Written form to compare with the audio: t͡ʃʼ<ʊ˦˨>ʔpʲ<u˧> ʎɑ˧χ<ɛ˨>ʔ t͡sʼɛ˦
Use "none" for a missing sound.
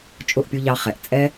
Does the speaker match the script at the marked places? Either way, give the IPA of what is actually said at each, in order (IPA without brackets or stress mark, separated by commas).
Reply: ʊ˦˨, u˧, ɛ˨